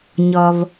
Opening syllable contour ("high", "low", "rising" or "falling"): low